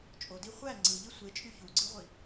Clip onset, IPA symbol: t͡ʃʼ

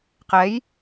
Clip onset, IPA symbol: q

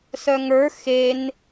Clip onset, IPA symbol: s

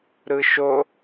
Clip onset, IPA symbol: ɾ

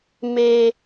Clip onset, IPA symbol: m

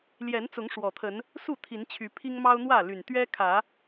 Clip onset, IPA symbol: l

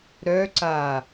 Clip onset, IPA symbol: ɾ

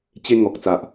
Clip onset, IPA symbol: t͡ɕ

